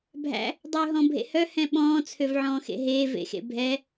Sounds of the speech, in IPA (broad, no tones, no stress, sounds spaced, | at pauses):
bʱ æ̰ | dˤ øː ɦ ɔ̃ bʱ ḛ h œ h ɛ̃ ɓ ɔ̃ː t͡sʰ ø v ʕ ɔ̃ː x ḛ ɦ eː v ḛ x ḛ bʱ ɛ